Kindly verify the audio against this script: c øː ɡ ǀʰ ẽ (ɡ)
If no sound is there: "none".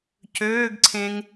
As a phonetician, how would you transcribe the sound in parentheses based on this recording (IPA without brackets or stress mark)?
ŋ